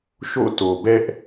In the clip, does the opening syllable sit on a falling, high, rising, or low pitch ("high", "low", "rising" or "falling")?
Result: falling